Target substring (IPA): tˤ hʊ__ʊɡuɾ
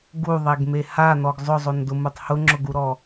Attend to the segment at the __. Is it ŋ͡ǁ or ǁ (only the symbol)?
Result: ŋ͡ǁ